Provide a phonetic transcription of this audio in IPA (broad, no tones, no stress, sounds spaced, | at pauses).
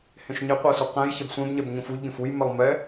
h ẽ ʃ ɲ ɪ qʷ ɜ s u q ɛ̃ j ç ɛ b sʷ ẽ b ɲ ɛ b ɲ ũ f u ʎ ɡ ẽ f u j m ɛ lˠ m ɛ